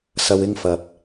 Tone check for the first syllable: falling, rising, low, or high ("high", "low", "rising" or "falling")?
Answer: low